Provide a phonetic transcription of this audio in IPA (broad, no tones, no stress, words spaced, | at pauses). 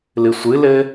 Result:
lɨsʷɨlɘ